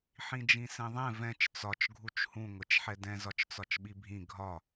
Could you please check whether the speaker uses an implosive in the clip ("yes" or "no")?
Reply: yes